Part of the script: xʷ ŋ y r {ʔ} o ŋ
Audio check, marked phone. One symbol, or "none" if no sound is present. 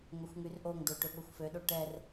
ʔ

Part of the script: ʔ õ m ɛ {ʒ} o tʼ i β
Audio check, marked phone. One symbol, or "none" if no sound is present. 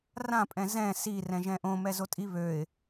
z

